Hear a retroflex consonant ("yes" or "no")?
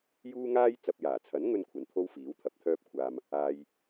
no